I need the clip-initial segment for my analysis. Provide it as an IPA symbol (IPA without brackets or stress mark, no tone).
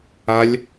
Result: a